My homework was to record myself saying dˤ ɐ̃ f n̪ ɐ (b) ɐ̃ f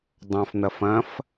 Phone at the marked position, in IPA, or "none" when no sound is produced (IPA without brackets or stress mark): f